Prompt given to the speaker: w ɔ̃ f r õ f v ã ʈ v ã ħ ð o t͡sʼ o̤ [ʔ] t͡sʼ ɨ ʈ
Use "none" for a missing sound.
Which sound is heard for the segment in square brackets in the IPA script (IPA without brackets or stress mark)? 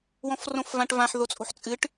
ħ